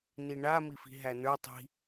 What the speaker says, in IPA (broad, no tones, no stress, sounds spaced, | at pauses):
n i ɳ a m i f i̤ ɦ æ n ə˞ tˤ i̤